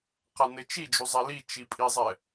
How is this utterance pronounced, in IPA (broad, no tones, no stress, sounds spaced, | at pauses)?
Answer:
q a n ɘ t͡ʃ i d͡ʒ u zˤ ɛ l i t͡ʃ i pʼ i zˤ ɛ